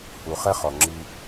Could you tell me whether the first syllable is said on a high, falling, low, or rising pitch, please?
low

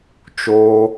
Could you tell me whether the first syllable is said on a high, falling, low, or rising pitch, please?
high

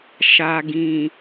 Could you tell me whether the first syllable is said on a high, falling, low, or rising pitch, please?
low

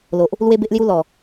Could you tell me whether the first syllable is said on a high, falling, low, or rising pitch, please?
low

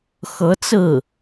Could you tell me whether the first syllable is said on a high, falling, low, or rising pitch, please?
rising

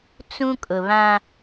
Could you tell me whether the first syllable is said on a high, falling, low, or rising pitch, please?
high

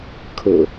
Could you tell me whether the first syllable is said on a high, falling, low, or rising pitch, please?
low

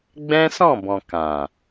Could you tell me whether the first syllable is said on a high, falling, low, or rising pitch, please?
high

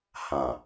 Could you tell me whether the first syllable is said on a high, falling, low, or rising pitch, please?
low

